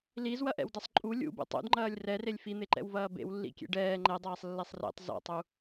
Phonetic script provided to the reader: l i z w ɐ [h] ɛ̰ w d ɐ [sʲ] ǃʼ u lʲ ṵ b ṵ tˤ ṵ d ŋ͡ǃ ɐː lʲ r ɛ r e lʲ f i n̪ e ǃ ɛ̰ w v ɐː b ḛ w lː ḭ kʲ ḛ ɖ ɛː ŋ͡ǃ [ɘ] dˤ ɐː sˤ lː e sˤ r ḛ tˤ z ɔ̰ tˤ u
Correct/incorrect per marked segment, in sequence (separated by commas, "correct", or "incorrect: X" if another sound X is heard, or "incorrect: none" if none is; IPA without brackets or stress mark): incorrect: ʔ, incorrect: sˤ, incorrect: ɛ